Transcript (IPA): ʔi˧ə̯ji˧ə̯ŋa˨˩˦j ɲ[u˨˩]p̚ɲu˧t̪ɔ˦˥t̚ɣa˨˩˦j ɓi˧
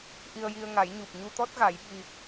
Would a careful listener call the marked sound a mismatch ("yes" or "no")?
no